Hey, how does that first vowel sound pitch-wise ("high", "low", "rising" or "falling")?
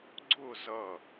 falling